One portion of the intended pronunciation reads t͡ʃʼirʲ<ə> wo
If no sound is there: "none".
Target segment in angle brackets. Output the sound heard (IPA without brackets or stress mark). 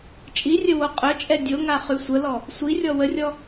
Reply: ə